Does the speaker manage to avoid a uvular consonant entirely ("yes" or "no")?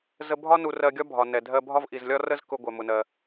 yes